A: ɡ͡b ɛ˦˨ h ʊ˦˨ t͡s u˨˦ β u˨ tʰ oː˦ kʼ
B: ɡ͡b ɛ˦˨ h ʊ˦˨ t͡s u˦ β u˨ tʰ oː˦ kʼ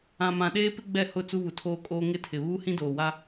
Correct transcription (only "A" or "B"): B